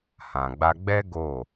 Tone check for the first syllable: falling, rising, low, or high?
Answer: low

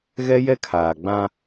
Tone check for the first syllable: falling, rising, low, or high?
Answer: high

